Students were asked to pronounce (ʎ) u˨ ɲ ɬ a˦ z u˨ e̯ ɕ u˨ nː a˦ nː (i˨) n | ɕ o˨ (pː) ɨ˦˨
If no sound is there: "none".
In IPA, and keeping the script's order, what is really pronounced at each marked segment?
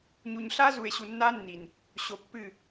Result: ɲ, i˨, pː

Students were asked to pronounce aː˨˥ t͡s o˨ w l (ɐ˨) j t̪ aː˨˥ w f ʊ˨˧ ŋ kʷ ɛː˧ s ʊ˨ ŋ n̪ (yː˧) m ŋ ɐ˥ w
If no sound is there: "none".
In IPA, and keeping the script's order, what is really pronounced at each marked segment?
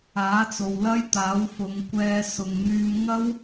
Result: ɐ˥, yː˧

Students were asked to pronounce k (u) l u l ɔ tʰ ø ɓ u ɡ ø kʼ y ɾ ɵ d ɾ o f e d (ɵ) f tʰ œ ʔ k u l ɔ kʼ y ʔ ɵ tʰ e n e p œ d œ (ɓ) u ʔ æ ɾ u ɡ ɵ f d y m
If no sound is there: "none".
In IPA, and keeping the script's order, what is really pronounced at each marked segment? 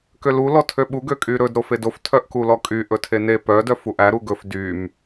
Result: ø, o, f

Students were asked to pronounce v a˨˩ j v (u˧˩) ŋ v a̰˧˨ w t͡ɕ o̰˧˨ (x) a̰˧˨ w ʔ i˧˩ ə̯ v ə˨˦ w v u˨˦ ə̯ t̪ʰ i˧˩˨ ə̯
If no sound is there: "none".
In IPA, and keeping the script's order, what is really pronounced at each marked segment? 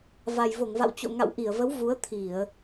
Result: o˧˩, ŋ

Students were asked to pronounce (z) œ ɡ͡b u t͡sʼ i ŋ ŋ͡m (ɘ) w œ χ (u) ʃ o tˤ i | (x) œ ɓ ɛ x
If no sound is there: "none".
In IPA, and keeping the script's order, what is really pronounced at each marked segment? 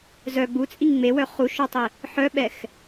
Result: z, e, u, ħ

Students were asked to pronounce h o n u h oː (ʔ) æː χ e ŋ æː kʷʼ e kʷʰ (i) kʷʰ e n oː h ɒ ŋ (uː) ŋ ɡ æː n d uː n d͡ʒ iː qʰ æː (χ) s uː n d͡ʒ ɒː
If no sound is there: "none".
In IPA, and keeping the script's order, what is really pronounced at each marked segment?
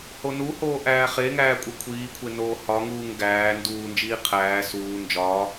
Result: ʔ, iː, uː, none

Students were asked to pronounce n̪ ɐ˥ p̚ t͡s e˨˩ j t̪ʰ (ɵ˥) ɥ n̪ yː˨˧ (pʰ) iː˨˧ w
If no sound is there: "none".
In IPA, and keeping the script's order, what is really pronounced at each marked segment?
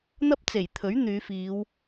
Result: ɵ˨˥, f

